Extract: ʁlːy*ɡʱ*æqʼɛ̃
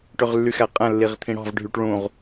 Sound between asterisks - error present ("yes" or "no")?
yes